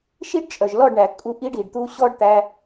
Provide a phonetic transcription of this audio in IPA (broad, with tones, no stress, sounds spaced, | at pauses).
ʃ i˦ ɖ t͡ʃʼ œ˨ ʒ l ɔ˦˨ ɖ ɳ æ˨ kʼ u˧ ʔ i˦ ɖ i˨ ɖ t̪ u˦ ɕ ɔ˦ ɖ t̪ æ˧